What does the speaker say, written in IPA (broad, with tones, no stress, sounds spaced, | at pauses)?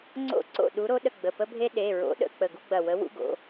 ŋ͡ǀ o̰˥˩ ǀ o̰˥˩ ɗ u˨˥ ɾ o˨˥ ɗ ə˧˩ ɡ͡b ə˩˧˩ p ə˦ bʱ e˦ ɗ e˩˧˩ ɹ o̰˨˥ ɗ ə̰˧˩ k͡p ə˧˩ ɡ u˦ ɡ͡b ɐ˧˩ w ə˨˥ w ṵ˦ ɡ o̰˩˧˩